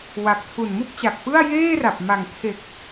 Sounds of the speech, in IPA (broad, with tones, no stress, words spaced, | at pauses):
wa˨˩k̚ tʰu˨˩nmu˥˩k̚t͡ɕa˨˩k̚pɯ˥˩a̯ jeː˥˩ra˨˩p̚ ma˨˩ŋtʰe˨˩k̚